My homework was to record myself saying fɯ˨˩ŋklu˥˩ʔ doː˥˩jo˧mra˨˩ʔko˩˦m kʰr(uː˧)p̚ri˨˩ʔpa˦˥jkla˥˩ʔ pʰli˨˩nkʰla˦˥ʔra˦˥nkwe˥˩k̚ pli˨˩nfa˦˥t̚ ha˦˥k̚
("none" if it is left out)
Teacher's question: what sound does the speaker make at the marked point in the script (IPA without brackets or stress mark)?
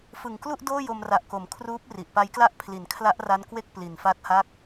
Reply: uː˦˥